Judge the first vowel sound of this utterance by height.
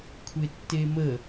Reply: mid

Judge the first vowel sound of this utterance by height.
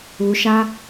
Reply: high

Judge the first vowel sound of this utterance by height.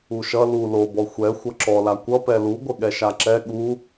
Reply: high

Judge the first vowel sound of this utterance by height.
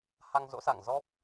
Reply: low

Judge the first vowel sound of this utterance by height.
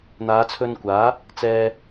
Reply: low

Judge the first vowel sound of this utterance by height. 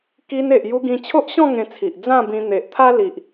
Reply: high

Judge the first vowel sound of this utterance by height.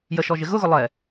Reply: mid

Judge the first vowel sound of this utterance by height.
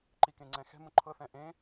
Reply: high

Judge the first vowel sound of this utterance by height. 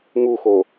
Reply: high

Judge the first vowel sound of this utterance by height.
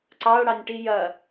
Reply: low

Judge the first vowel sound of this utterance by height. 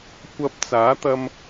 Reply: low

